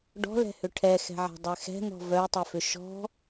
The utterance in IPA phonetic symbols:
ɖ ɔ̤ l ɛ̤ h ʏ ʈʰ ɛ x ɛ̤ ʕ ɛ̤ dˤ ɛ x ɛ̤ n̪ ɔ̤ v œ u̯ tˤ ɛ f ʏ ʃ ɔ̤

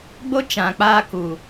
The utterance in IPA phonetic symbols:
ɡ͡b o˦ t͡ʃ ã˨ k͡p aː˧ k u˨

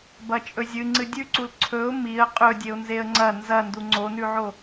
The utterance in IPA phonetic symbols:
b ɐ t͡ʃʼ ɵ zʲ ɨ ŋ͡ǀ ɨ dʲ ʉ ǀ u l ǀʰ ɵ ʊ̯ m i ə̯ qʼ ɵ dʲ e ʊ̯ n z e ə̯ ŋ͡ǀ ɐ n z ɐ n d u ŋ͡ǀ o n ʉ ʕ o

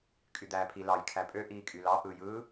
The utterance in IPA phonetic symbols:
kʼ y d̪ æː pʰ i l ɑ j kʰ æ pʼ ø ʔ iː kʼ y l ɑ ʔ ɯ j ɯː

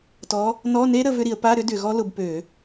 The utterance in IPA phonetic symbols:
t ɔ˨˦ | n ɔ˧˥˧ n e˦˥ ɾ ə˨˦ v ʏ˦˥ ɾ i˧˩˧ ə̯ p a˧˥˧ ɾ ʏ˦˥ d ʏ˧˩˧ ɣ ɔ˦˥ l ʊ˨˦ b p ø˧˩˧

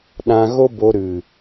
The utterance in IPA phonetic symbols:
ɗ ã˧ ɣ o˦ b o˧ ɾ ɨ˨

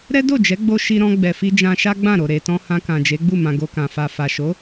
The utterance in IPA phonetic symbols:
ɾ ɛ˦ d o˦˨ d͡ʒ ɛ˨˦ ɡ͡b o˧ ʃ i˧ ɾ ɔ̃˧ ɡ͡b ɛ˨ f i˧ d͡ʒ ã˧ ʃ a˦ ɡ͡b ã˦˨ ɾ o˨ ɾ e˨ t ɔ̃˧ h ã˧ k ã˨ d͡ʒ e˨˦ ɡ͡b u˦˨ m ã˧ ɡ o˧ k ã˨ f a˨ f a˨ ʃ o˨˦

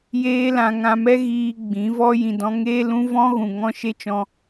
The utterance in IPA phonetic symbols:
j eː˦ l ã˧ ŋ ã˧ m ɛ˦ ɣ iː˧ ɡ͡b ĩ˨˦ v ɔ˦ j ĩ˨ d ɔ̃˧ ŋ eː˦ l ũ˦ v ɔ̃˦ ɣ ũ˨ ŋ ɔ̃˦ ʃ e˦ t͡ʃ ɔ̃˧

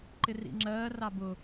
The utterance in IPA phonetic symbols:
ǃ ɪ r ḭ ŋ͡ǁ ɜː r ɑ b ʊ

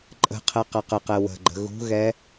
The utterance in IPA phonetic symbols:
ǃʼ ə̤ qʰ ɛ q ɐ q ə q ɛ w ə̤ ɡ͡ǃ ə̤ ɣ ṳ ɣ ɛ

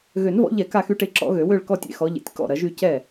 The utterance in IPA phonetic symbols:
ɣ ø˨˩˦ n v ɔ̰˨˦ ʎ ɛ˨˩˦ k a˥˧ x y˥˧ ʈ e˥˩ ǁ ɔ̰˨˦ ɣ ø˨˩˦ w ø˥˧ ɭ k ɔ˥˧ tʲ ḛ˥˩ x ɔ˨˦ ʎ ḛ˨˦ tʲ k ɔ̰˥˩ ɾ ɐ˨˦ ʒ y˥˧ c ɛ˥˩

